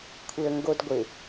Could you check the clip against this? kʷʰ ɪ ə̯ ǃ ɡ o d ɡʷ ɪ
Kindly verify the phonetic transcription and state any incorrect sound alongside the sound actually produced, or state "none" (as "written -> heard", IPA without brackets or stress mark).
ǃ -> ŋ